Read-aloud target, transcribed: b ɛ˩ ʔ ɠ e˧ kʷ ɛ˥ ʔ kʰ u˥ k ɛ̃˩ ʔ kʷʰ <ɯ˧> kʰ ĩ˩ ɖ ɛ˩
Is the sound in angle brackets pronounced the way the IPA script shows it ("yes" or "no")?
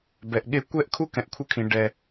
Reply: yes